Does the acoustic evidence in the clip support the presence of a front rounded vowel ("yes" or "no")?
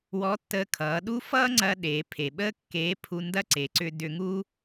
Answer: yes